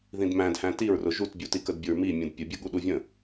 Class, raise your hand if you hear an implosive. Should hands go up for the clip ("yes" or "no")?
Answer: yes